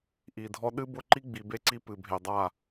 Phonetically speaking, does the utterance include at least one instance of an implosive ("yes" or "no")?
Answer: yes